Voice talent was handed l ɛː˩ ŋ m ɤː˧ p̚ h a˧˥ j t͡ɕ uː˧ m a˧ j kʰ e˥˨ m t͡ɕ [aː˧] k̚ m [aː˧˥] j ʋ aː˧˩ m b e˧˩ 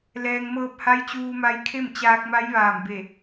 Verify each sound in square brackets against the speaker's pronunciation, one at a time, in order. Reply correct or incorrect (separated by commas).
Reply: correct, incorrect